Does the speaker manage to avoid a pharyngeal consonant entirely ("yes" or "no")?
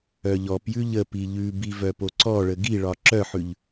no